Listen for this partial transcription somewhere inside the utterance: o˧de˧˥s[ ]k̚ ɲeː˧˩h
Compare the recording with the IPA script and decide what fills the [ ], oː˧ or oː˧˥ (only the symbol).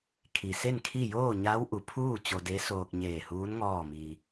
oː˧